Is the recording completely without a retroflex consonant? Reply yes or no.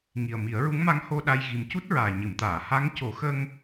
yes